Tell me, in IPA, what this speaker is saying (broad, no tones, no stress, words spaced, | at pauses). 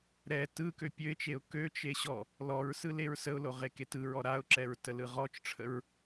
ɾɛ tɯkø pʲøɪ̯t͡ʃeʊ̯ køt͡ʃe ɕɔ | lɔɹsɯ leɹsəʊ̯lo ʁeketɯɹɔ ɾaʊ̯ǁɛɹ təlɯʁɔt͡ʃʈ͡ʂʰəɹ